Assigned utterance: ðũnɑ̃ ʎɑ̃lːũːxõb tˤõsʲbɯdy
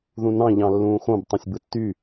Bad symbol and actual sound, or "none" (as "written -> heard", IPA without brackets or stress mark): d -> tː